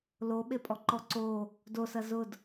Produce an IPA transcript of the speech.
l o ɓ e pʼ ɔ ǃ ɔ ǀ o | d o s ɐ z ʊ d

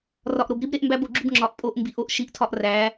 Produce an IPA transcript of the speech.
r ɒ˨ ʔ ɾ o˨ b ɾ i˦ b ɾ e˦ ʔ m b æ˦ b o˨ ɡ͡ǁ u˦ b ŋ͡ǁ ɒ˨ ʔ pʼ o˦ ʔ m b i˨ ʔ o˦ ʔ ʃ i˨ ʔ tʰ ɒ˦ ʔ r æ˨˦

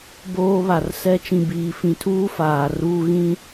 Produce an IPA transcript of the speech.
b oː˦ β a˨ r s ɛ˦ t͡ʃ ĩ˨ b iː˨ f ĩ˨ tʰ uː˦ f aː˨ r uː˦ ɣ ĩ˦

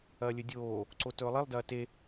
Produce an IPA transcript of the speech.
ɐː lʲ ɵ dʲ oː | ǀ o t ɵː lˠ i lˠ d ɐː t e

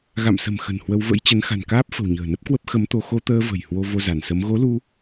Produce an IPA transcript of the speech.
ɣ a̰˧˨ m s ə̤˨˩ m x ə̤˨˩ n h w ə˧ w v ə̰˧˥ j t͡ɕ ə˨˦ n x a̤˨˩ n k aː˦˥ p̚ f ə̤˨˩ w ɲ ə̤ː˨˩ n ə˦˥ p̚ k w ə˦˥ p̚ x ə˨˦ m t̪ o˧ x o˧ t̪ əː˧ v ə̤˨˩ j h w o˧ v o˧ z a˧˩ n s ə˨˦ m ɣ o˨˦ l u˧

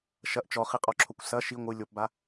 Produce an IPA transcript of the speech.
ʃ ɐ ʔ t͡ʃ ɔ χ i qʼ ɔ ǁʰ o kʷ s ɐ ʃ i ŋʷ ɨ lʲ o p b a

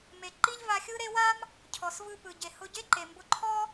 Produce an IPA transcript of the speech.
m e˩ ǃ i˥ ʎ v a˧ xʲ ɯ˥ ɾ e˥ w a˥ m | cʰ ɔ˩ s v ɯ˧ p ɯ˩ ɟ e˩ h ʊ˧ ɟ e˥ ǃ e˩ m b ʊ˧ ǃʰ ɔ˥

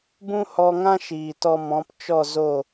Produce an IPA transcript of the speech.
b ũ˦ h ɔ˧ ŋ ã˦ ʃ iː˨ t ɔ˧ m ɔ̃˨˦ p t͡ʃ ɔ˦˨ z o˦˨

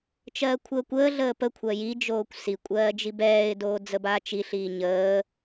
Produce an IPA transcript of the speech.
t͡ʃ ɜː kʷʰ əː kʷ əː ɮ əː p ə kʷʰ ɜ j i d͡ʒ oː kʷ s i kʷʼ ɜː d͡ʒ i b ɛː ɪ̯ d oː d͡z ə b aː t͡ʃ i ɬ iː ɲ əː

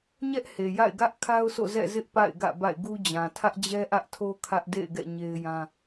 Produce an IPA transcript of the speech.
ɲ ɛ˦ ʔ h e˨ j a̰˦˨ ɪ̯ ɡ ä˦ ʔ kʰ a˦ ʊ̯ sʰ o̰˦˨ z ɛ̰˦˨ z ɪ˦ ʔ p a̰˦˨ ɪ̯ ɡ ä̰˦˨ b a̰˦˨ ɪ̯ ɡ u˦ d͡ʑ ã˨ tʰ ä˦ ʔ d͡ʑ ɛ˦ ʔ ä˦ ʔ tʰ o˦ kʰ ä˦ ʔ d ḛ˦˨ ɪ̯ ɡ ɛ̰˦˨ ɲ e˦ ɪ̯ j ã˦

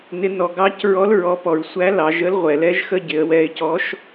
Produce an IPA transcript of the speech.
n ɪ˩˧ n ɔ˩ ɡ ɑ˧˥ c ɹ ɔ˧˥ l ɹ ɔ˩˧ p ɔ˩ ɹ sʷ æ˧˥ l ɑ˩˧ ʒ ə˧˥ l ʁʷ ɛ˩ l ɛ˥ ʒ x ə˥ ɟ ɪ˩˧ ə̯ w ɛ˧ ɪ̯ c ɔ˧˥ ʃ

